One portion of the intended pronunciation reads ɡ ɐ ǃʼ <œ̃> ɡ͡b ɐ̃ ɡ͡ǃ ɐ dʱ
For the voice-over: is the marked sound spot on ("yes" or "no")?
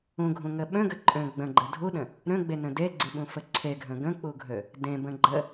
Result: yes